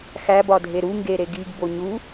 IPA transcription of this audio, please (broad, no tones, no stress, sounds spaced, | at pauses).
x æ b ɒ dʱ e ɾ u ŋ ɡ e ɾ e ɡ i ɡ b o ɲ u